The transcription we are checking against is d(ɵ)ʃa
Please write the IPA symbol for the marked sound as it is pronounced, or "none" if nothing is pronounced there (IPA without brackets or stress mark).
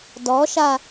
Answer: ɔ